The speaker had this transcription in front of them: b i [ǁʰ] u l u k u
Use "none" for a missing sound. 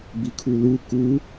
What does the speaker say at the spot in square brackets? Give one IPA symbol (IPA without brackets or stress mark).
kʰ